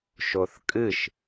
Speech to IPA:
ʃ o θ kʼ ɨ ʃ

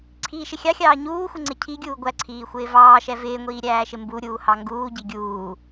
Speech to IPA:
ǀʰ iː ʃ ɪ xʲ ɑ xʲ ɑː ɲ uː xʷ ɪ ŋ͡ǀ ɪ cʰ i ɡʲ uː ɡʷ æ ǀʰ iː xʷ ɪː v ɑː ʃ ɛ v ɪː ŋʷ iː ɾʲ æː ʃ ɪ m b u ɾʲ uː h ɑ ŋ ɡ uː ɟ i ɡʲ uː

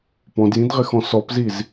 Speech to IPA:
p ɔ̃ d j ĩ d ʁ ɪ x ɔ̃ s ɔ p z i z

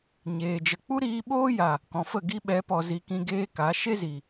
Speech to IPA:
ɲ eː˨ d͡ʒ ə˨ k͡p u˦ ɾ iː˧ ɓ oː˦ j a˨ | k ɔ̃˨ f ə˦˨ ɡ i˧ ɓ ɛ˨˦ p ɔ˨ z i˨ k ĩ˧ ɡ eː˦ k a˨˦ ʃ e˦ z i˨

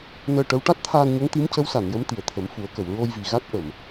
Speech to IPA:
n əː˧ ʈ ə˧˥ w ʈ a˦˥ t̚ t̪ʰ aː˧ n ɲ ə˧˥ ŋ t̪ i˧˥ m c ə˧˥ w s a˨˩˨ n j ə˧˥ m t̪ i˨˩ ə̯ t̪ʰ ə˨˩˦ m f u˨˩˦ ə̯ k ə˨˩˨ w ɹ o˧ j v i˨˩ ɣ a˦˥ t̚ ʔ ə˨˩˨ m

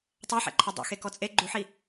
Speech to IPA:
tˤ a ħ ɛ̰ ǃʰ ɛ dˤ ṵ x e k ɔ t͡sʼ e ɡ͡ǃ u ħ i

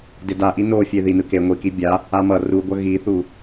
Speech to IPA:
d e d a ʔ i n o fʲ e ð i n ɯ k e ŋʷ i k i bʲ a | a m ʌ r u ɡʷ ʌ ɣ i θ u

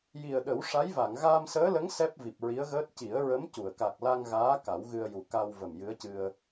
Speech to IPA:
j i˨˩ ə̯ ɗ ə˨˩˦ w ʂ a˧˥ j v a˨˩˨ ŋ ɣ aː˧ m s əː˧˥ l ə˧˥ ŋ s ɛ˦˥ p̚ v i˨˩ p̚ ɹ i˧˥ ə̯ ɣ əː˦˥ t̚ c i˨˩˦ ə̯ ɹ ə˧˥ m c u˨˩˨ ə̯ k a˨˩ k̚ l a˧ ŋ ɣ aː˧˥ k a˨˩˦ w ɣ ɨ˧ ə̯ j u˨˩ k a˧ w v ə˨˩ m j ɨ˧˥ ə̯ c ɨ˧ ə̯

